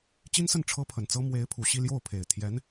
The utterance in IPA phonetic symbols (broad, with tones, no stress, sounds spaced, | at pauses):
t͡ɕ i˥ n s ə˥˩ n ʈ͡ʂʰ ɤ˥ pʰ ə˨˩ n t͡s ɤ˥ m w e˧˥ ɪ̯ pʰ u˨˩ ɕ i˥˧ l j o˥˩ ʊ̯ pʰ e˨˩ ɪ̯ t̪ʰ j ɛ˧˥ n